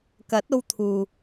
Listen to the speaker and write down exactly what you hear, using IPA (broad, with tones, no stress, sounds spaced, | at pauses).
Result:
k ɐ˨˥ t̚ o˧ w t̪ʰ uː˨